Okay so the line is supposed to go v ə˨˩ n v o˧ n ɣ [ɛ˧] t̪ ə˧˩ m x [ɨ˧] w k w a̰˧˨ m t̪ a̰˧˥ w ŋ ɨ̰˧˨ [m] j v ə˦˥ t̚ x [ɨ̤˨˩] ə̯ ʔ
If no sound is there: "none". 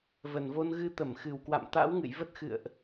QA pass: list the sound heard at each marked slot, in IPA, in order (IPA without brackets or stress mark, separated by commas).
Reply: ɨ˧, ɨ˨˩, none, ɨ̰˧˨